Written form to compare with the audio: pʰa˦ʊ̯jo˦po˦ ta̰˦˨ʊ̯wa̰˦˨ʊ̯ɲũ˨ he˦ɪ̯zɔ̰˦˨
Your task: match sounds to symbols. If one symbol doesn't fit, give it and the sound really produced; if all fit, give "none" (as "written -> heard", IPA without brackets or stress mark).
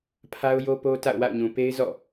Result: h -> p